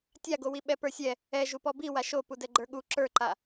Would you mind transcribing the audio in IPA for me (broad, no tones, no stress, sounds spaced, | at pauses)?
tʲ a ɡ o w i ɓ ɛ p ə˞ sʲ ɛ | ɛ ʒ u p ɔ b i w a ʃ o p u d ɛ ɡ͡ǃ ə˞ ɠ u ǁ ə˞ ǃ a